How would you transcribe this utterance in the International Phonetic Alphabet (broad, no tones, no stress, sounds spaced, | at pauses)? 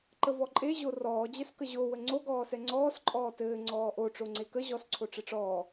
ǃ ə v ɔ ǃʼ e ʑ o r ɔː d͡ʑ ɛ s k ə ʑ o w ə ŋ͡ǀ o ɡ ɔː s ɛ ŋ͡ǀ ɔː s ǃʼ ɔː t ɘː ŋ͡ǀ ɔː ʔ o ʈ͡ʂ o ŋ͡ǀ e k ə ʑ ɔ s ǀʰ o ʈ͡ʂ ɘ ʈ͡ʂ ɔː